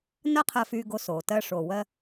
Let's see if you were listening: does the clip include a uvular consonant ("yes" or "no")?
yes